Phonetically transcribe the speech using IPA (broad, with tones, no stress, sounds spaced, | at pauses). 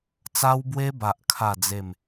t͡s a˧ w b w e˧ b a˨ ʔ kʰ a˥˧ d͡z e˥˧ m